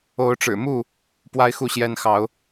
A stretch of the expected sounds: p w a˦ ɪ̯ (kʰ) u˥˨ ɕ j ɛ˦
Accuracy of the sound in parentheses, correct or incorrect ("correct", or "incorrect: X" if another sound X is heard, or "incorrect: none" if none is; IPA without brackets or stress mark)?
incorrect: x